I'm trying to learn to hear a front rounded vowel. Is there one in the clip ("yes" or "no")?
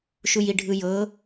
no